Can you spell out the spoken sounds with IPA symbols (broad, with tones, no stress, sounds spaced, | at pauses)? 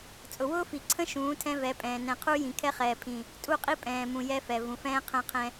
t͡sʼ ʊ˨ w ʊː˦ f i˨ ǀʰ ə̃˦ ʃ ũː˨˦ tʰ ɛ̃˦ v ɛ˨˦ pʼ ɛ̃ː˨ n ɛ̃˨ qʰ u˦ j ĩ˨ kʰ ɛ˦ χ ɛː˨ pʰ ĩ˨ | tʼ u˦˨ qʼ i˦ pʼ ɛ̃ː˨ m ũ˨ j ɛ˦ f ɛ˨ v ũ˨ f ɛ̃ː˦ qʰ ə̃ː˦ qʰ ɛ̃˦